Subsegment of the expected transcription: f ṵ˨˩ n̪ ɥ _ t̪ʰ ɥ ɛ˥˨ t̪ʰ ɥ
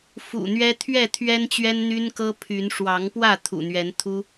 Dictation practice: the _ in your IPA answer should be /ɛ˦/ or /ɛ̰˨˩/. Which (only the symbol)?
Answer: ɛ˦